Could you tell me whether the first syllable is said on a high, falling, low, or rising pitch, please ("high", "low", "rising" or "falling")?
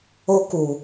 high